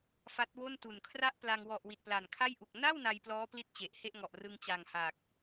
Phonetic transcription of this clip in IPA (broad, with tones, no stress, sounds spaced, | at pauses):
f a˦˥ t̚ w o˥˩ n t u˨˩ n kʰ r a˥˩ ʔ p l a˧ ŋ w ɔ˨˩ ʔ w i˨˩ t̚ p l a˨˩ n kʰ a˥˩ j ʔ u˨˩ k̚ n a˥˩ w n a˧ j p l ɔː˦˥ p l i˦˥ t̚ t͡ɕ e˨˩ ʔ h e˥˩ ʔ ŋ ɔ˨˩ ʔ r ɯ˧ ŋ t͡ɕ a˨˩ ŋ h aː˨˩ k̚